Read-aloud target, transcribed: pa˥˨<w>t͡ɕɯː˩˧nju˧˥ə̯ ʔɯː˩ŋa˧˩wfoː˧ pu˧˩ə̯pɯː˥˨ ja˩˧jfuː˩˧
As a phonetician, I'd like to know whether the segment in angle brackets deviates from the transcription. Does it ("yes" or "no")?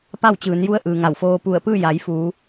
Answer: no